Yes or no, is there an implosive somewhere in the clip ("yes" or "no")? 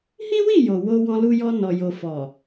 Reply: no